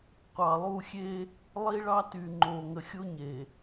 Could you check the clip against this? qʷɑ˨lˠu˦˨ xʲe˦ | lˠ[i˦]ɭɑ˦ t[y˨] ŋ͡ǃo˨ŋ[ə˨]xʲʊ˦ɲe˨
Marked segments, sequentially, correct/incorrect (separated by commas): correct, correct, correct